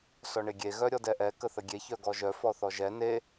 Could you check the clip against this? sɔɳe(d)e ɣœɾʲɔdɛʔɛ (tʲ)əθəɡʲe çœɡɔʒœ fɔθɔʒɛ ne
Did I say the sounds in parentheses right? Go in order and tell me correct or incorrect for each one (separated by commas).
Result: incorrect, incorrect